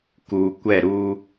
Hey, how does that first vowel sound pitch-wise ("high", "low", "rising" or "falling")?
low